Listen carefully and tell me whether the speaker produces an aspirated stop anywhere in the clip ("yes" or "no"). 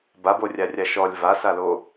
no